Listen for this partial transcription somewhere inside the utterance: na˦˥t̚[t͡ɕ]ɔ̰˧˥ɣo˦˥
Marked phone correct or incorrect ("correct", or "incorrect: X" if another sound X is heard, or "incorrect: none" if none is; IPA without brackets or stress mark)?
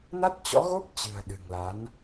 correct